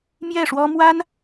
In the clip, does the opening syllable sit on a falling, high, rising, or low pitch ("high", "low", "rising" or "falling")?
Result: falling